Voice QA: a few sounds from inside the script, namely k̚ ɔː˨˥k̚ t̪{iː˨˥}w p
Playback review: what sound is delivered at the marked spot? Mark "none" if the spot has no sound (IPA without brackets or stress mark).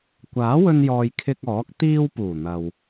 iː˧